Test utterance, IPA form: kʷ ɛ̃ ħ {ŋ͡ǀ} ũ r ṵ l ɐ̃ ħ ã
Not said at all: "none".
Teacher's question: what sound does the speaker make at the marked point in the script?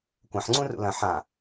ŋ͡ǀ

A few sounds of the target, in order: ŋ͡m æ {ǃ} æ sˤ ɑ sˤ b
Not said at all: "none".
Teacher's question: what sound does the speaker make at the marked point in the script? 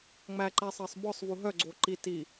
ǃ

